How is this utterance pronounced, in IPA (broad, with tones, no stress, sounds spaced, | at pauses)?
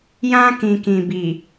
j ã˦ k ĩ˨ k ĩ˨ b i˨